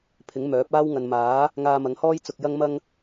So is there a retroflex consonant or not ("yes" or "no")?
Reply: no